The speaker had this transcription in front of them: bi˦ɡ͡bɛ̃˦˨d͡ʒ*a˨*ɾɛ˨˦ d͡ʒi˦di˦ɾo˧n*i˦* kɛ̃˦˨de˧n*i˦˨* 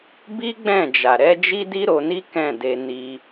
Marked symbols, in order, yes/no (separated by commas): yes, yes, no